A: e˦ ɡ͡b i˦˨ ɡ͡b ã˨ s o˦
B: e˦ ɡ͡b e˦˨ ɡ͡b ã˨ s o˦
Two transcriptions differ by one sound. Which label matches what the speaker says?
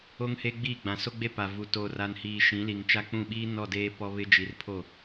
A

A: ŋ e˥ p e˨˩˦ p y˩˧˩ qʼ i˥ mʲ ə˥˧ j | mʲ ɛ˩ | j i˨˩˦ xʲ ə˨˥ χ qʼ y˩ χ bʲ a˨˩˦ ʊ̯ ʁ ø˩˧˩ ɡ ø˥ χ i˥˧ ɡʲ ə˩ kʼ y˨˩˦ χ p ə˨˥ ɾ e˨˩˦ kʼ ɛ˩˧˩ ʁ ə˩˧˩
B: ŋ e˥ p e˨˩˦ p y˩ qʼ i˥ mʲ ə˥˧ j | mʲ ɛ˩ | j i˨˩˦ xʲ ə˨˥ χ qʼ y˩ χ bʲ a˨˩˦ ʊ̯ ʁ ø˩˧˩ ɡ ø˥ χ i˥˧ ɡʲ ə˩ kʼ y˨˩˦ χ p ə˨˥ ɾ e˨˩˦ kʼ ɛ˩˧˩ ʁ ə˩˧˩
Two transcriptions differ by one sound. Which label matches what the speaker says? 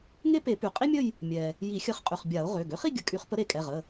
B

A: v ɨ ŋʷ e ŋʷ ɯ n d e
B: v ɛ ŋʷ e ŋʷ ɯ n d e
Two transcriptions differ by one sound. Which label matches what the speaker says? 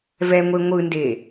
B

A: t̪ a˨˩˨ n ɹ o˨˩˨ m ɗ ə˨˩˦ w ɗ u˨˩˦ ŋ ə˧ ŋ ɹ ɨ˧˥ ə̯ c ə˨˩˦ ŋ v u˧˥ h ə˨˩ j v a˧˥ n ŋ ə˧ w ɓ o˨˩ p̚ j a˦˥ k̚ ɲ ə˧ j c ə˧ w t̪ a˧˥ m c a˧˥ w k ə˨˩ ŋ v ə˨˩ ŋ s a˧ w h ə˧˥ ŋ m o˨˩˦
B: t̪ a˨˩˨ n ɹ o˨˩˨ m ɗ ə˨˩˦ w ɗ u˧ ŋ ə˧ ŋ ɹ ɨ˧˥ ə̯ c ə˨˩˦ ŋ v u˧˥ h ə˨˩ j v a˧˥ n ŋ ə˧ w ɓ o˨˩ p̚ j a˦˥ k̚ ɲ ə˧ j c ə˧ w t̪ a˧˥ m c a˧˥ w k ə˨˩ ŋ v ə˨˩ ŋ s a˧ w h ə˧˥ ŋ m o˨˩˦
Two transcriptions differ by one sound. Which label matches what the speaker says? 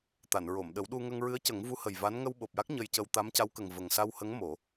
B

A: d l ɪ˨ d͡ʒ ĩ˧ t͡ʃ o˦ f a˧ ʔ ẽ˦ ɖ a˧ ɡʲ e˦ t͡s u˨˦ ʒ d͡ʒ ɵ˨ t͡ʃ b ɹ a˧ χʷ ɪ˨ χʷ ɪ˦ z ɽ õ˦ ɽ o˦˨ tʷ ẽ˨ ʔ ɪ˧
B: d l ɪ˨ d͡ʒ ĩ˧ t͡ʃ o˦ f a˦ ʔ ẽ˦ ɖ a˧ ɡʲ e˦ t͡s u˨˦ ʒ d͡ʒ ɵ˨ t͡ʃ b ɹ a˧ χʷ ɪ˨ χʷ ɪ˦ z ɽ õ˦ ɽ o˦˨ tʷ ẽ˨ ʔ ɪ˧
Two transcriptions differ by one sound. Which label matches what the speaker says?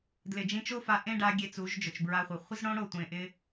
A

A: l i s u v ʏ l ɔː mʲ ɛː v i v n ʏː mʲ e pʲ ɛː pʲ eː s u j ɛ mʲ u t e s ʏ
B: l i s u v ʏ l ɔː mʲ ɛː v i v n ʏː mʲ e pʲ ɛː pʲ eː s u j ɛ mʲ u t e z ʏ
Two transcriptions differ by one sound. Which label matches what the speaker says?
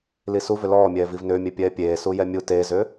B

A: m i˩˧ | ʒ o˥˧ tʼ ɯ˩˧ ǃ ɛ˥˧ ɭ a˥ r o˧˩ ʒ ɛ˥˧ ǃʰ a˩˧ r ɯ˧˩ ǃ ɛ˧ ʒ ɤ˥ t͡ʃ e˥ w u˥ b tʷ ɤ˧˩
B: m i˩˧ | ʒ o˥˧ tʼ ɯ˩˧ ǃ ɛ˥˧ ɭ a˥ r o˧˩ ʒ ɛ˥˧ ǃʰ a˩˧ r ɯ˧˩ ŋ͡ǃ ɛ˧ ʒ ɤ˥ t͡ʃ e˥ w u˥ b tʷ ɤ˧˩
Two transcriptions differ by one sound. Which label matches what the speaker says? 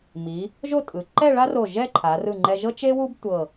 B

